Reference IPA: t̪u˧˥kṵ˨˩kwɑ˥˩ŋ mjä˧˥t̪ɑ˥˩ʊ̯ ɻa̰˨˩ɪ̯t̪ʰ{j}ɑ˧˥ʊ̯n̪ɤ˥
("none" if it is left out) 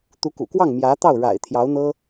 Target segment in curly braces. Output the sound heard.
j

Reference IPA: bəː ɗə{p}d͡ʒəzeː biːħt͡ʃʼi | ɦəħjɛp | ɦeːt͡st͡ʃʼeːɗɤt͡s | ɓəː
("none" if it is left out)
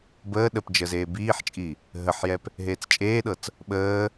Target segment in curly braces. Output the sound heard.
p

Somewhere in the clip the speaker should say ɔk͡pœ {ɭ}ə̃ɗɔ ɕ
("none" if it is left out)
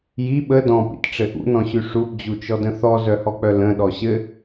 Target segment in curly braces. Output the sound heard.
l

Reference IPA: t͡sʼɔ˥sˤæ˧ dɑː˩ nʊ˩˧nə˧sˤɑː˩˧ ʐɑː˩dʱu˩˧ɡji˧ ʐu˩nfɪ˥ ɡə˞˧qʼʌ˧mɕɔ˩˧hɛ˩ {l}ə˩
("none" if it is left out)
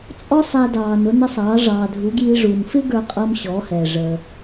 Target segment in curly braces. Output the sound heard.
ʐ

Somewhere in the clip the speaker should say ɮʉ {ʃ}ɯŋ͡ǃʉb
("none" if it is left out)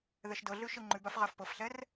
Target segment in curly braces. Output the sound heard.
ʃ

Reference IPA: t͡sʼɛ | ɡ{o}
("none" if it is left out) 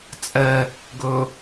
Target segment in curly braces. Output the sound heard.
ɵ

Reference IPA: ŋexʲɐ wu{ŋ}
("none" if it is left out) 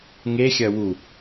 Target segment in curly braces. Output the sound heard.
none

